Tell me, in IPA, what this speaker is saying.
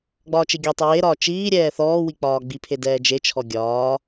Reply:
ɡ͡bɒːt͡ʃeɡʲɒtˤɨ weɾɒː t͡ʃiːɾʲɛː θɔːwi k͡pɒːɡ͡bipʰe dɛːd͡ʒet͡ʃʰɔ ɡʲɒː

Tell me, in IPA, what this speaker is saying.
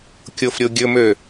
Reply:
kʲofɾʲoɡʲɵmø

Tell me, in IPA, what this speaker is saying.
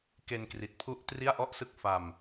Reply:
ke˧nkri˨˩t̚pʰu˦˥ʔ tri˥˩a̯ʔɔ˥˩ʔsɯ˦˥k̚ fa˧m

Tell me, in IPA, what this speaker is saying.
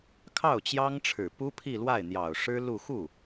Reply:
kʰɑ˥˩ʊ̯t͡ɕjɑ˥ŋʈ͡ʂʰɻ̩˨˩ pu˥pʰi˥˧lwa˥˩ɪ̯n̪jɑ˨˩ʊ̯ ʂɻ̩˥ lu˥˧ xu˥˩

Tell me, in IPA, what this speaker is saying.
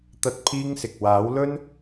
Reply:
t̪ɐ˥t̚pʰiː˥ŋsɪ˨k̚ waː˨˥wlɵ˥n

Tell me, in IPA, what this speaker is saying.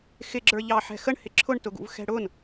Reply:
xɪɡ͡ǁə˞ʎɑħɛ̤ xəɳhɪ ǁʰʊɳtʊɡṵv xɛ̤ɽʊn

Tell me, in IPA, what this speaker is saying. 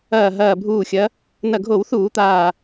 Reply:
ɐː˧˩ ɦɐː˧˩bʱuː˧˩xʲɐ˨˦ | nɐ˧˩ɡʱo˧˩˧wθuː˧˩˧ t̪aː˧˩

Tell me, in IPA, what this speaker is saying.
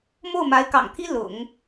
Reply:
mo˥˩ʊ̯ma˧˥ɪ̯kɑ̰˨˩ŋt̪ʰi˥ lʊ̰˨˩˦ŋ

